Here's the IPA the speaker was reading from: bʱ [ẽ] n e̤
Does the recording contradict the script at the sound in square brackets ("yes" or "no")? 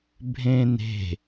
no